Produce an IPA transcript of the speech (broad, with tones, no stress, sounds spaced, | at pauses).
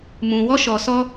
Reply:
m ũ˧ w ɔ˦ ʃ ɔ˧ s ɔ˦